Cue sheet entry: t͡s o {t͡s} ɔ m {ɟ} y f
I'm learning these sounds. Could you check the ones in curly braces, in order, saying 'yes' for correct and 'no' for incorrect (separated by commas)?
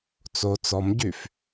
yes, yes